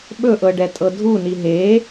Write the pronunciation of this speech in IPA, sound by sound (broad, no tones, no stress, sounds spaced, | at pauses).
ɓ ɵ ʔ ɤ ɖ ɛ tʼ ɤ dʱ u n i ɦ e